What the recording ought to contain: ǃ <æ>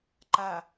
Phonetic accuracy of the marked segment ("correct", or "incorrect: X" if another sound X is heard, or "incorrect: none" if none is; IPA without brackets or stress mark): incorrect: a